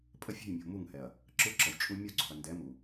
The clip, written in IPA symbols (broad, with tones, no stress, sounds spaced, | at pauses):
pʼ ə˦ fʲ ɛ̤˦˨ j mʲ o̤˨ m u˦˨ ŋ h ɛ˨ ɐ̯ | ǁ ɯ˦ ǁ ə˨ j t͡ʃʼ u˦ mʲ o˦ ǀ o̤˨ ɐ̯ n d ɛ˨˦ m u˨